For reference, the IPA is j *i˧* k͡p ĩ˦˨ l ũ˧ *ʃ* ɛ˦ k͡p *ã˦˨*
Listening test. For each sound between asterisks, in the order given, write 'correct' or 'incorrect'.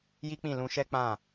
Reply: incorrect: i˦, correct, correct

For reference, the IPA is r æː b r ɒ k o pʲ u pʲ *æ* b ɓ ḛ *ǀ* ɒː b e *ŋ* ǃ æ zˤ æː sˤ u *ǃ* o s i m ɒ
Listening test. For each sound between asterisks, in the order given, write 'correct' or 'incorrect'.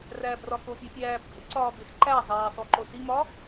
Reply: incorrect: æː, correct, incorrect: x, correct

